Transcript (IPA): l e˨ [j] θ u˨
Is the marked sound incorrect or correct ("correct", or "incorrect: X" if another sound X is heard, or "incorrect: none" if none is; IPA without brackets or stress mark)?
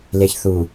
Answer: incorrect: ç